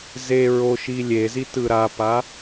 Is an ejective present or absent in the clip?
absent